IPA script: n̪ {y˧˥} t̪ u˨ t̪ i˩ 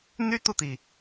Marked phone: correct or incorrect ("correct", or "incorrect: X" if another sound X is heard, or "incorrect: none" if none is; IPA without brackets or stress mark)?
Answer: incorrect: y˥